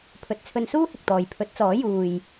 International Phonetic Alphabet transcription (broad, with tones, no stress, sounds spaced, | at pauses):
pʰ ɵ˨ t̚ t͡sʰ ɵ˧ n s uː˥ h ɪ˨ k̚ t̪ ɔː˨ j pʰ ɵ˨˥ t̚ t͡s ɔː˨˥ j uː˨ j